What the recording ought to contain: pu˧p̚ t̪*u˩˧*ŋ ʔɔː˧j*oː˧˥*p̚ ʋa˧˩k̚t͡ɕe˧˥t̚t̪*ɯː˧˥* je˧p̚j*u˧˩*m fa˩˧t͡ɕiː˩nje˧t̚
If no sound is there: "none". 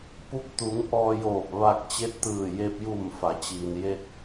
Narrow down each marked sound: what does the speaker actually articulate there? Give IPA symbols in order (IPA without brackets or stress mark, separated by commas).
u˩˧, oː˧˩, ɯː˧˩, u˧˩